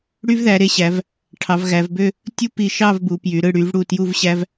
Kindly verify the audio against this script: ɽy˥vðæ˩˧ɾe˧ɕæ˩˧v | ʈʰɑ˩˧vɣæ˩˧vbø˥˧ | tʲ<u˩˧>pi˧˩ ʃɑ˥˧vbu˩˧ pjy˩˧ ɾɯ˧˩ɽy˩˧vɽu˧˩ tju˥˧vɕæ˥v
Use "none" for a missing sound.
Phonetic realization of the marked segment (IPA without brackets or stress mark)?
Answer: u˥˧